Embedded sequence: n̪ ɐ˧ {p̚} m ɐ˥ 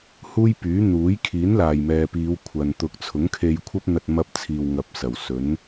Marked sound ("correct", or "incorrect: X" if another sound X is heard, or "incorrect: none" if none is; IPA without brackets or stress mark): incorrect: t̚